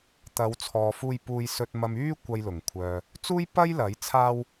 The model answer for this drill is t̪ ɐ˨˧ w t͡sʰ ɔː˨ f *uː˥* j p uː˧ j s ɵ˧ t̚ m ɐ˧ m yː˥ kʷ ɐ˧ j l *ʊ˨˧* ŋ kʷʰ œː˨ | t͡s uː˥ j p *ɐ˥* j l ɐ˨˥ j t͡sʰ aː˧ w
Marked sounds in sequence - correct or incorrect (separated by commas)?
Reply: incorrect, incorrect, correct